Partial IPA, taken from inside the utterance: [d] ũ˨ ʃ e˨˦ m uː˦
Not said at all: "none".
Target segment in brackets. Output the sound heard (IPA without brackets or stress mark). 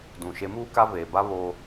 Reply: d